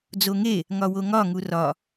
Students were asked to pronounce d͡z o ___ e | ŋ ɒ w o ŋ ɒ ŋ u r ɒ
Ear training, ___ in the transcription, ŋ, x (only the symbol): ŋ